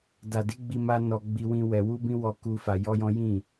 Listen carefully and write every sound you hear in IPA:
da˨di˨˦ɡ͡bi˧ ma˦nɔ˧ ɡ͡bi˦wĩ˦wɛ˧ wu˦bĩ˦wɔ˧ ku˧ fa˧jɔ˦jɔ̃˦ jĩ˦˨

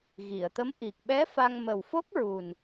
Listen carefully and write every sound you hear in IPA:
ɣi˨˩˨ə̯t̪ə˧˥m ʔi˨˩k̚ɓɛ˧˥ fa˧ŋ mə˨˩wfo˦˥k̚ ɹu˨˩n

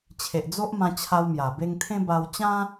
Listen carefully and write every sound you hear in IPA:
t͡ɕʰe˨ʔd͡zo˦ʔ mã˧t͡ɕʰa˧w mja˨˩ be˧ŋt̪ʰẽ˦ ba˧w t͡ɕã˦

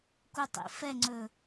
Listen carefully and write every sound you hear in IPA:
kutˤḭfɛŋ͡ǀɵ

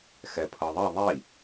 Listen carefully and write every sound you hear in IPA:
xɛpʰɤðˤi ðˤi

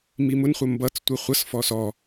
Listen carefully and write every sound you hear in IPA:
mimʊn χʷəmbʌt͡s tʷəχʷʌs fɔsɔ

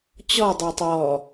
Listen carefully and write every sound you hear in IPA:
t͡ɕɔdˤɐːtˤ ɔ

